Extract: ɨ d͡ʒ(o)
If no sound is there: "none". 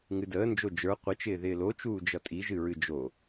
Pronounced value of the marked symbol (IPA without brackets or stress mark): o